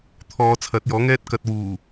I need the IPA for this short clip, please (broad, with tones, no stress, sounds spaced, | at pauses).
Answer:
t̪ʰ ɔː˨˧ t͡sʰ ɐ˨˥ t̚ j ɔː˨˥ ŋ ɛː˥ t̚ k ɐ˧ t̚ w uː˨˩